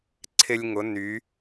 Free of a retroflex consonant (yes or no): yes